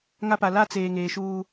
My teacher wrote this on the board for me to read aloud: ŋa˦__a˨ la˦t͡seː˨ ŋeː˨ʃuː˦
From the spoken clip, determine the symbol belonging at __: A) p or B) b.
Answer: A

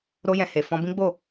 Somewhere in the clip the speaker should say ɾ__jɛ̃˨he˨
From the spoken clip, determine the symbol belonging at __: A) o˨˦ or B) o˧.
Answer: B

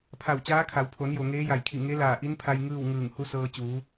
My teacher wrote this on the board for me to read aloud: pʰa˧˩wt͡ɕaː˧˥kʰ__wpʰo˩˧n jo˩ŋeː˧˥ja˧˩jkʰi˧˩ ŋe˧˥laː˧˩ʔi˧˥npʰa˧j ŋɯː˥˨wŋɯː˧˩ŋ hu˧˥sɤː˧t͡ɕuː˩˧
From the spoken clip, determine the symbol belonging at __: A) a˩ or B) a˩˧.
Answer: B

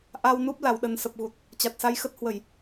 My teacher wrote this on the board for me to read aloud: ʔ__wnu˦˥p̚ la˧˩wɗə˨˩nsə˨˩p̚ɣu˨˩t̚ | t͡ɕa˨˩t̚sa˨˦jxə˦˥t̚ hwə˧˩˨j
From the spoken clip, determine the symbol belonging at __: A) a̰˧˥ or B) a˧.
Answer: B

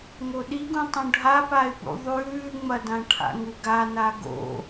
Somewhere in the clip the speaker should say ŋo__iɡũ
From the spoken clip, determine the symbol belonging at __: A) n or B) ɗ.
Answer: B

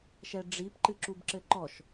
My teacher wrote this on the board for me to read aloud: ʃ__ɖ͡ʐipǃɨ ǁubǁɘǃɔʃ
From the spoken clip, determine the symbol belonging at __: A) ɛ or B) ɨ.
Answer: A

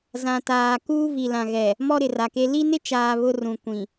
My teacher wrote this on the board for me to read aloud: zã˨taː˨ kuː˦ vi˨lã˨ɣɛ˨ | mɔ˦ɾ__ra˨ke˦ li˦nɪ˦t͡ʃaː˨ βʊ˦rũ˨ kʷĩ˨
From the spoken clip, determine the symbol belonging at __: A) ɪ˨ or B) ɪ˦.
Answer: A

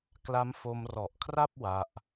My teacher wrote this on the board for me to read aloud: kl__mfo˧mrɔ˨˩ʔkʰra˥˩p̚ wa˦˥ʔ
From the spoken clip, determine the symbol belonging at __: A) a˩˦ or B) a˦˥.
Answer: B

